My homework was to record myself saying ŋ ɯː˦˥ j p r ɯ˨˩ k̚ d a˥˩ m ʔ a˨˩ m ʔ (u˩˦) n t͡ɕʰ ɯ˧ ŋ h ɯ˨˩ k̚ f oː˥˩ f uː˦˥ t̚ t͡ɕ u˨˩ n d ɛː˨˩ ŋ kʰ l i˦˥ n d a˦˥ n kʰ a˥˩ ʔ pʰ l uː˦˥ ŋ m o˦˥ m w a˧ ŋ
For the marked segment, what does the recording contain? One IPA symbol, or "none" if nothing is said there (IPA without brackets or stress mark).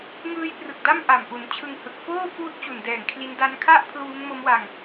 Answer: u˩˦